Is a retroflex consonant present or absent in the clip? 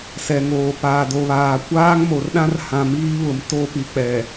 absent